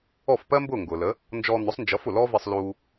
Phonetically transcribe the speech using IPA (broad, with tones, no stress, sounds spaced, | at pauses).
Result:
ɔ˥˩ f p ɜ˥ m b ʊː˥˩ ŋ ɡ ʊː˩ l ə˩˥ | n d͡ʒ ɔː˧ n̪ ʊ˩˥ sˤ n d͡ʒ ʌ˩˥ f ʊ˩ l ɔː˥ v i˧ sˤ l uː˧